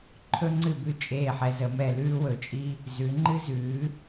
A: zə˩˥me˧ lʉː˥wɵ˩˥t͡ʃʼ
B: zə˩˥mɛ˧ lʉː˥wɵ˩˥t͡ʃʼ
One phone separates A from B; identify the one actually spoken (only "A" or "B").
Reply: B